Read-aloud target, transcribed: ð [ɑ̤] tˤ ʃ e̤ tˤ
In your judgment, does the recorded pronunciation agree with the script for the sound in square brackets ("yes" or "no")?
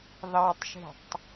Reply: no